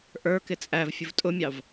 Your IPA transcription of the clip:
ʔ ə˞ k ɪ t͡sʼ æ v fʲ ʊ v tʼ ʊ mʲ ɑ v

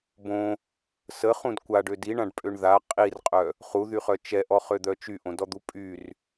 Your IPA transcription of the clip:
b õ | s ə χ ũ d kʷ a ɖ ø d i ɳ ã ɖ pʼ ø ɳ ð a qʼ i r qʼ œ | χ u ð y χ œ t͡ʃ ɛ ʔ ɔ χ ø d̪ œ t͡ʃ y ʔ õ d ɔ d̪ u pʼ y r

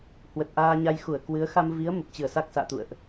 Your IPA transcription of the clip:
h w ə˨˩ t̚ ʔ aː˧ ɲ a˧ j x u˧˩ ə̯ k w ɨ˨˦ ə̯ x a˧ m v i˨˦ ə̯ m ə˨˩ p̚ t͡ɕ ɨ˧˩ ə̯ s a˦˥ k̚ s a̰ː˧˨ t̪ ṵ˧˨ ə̯ ʔ

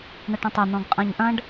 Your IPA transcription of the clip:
ɳ ɐ ʈ ə̃ tˤ ɐ n̪ ɔ̃ ɡ qʼ ã ɲ ʔ ɐ̃ ɖ

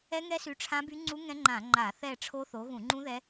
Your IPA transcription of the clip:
ɛ˦˥ ŋ ɛ˦˥ s y˨˦ ʈ͡ʂʰ ã˦˥ b y˦˥ ŋ͡ǀ u˦˥ ŋ ɛ̃˦˥ ŋ͡ǃ ã˧˩˧ ŋ͡ǃ a˧˩˧ θ ɛ˦˨ ʈ͡ʂʰ o˦˥ θ o˨˦ ɣ ũ˧˩˧ ŋ͡ǃ ũ˦˥ ð ɛ˦˥

